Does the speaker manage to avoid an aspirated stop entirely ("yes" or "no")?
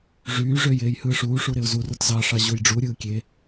yes